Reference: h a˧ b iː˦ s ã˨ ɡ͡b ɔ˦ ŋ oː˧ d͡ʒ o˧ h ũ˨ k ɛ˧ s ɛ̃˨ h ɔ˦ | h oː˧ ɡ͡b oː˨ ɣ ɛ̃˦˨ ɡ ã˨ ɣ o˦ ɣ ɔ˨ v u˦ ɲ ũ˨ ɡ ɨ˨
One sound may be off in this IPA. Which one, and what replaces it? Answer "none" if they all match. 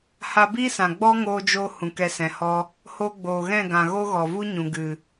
none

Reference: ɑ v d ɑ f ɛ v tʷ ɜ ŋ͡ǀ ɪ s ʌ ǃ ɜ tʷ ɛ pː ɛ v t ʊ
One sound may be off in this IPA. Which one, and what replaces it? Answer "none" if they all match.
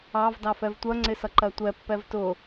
none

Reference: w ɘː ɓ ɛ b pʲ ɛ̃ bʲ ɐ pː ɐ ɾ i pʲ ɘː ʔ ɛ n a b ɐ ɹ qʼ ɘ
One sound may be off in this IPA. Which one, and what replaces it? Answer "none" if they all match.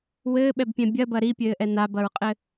pː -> b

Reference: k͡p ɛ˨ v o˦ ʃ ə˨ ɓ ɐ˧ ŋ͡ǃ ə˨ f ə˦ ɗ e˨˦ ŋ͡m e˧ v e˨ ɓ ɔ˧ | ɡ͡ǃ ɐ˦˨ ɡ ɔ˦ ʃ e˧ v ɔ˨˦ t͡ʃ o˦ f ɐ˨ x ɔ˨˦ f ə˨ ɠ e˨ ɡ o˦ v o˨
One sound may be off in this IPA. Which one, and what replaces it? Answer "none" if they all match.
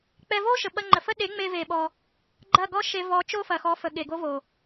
ɛ˨ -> ɛ˧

